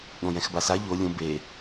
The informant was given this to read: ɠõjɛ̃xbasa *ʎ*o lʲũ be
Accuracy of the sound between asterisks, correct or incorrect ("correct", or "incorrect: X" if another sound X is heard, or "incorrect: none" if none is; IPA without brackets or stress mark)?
correct